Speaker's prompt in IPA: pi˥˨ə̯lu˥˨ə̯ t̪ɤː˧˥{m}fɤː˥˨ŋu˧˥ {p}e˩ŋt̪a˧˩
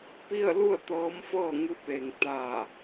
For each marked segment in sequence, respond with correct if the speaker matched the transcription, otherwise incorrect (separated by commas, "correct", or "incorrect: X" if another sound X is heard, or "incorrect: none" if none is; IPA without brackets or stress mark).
correct, correct